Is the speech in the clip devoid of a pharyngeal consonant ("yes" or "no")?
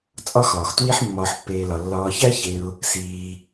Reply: no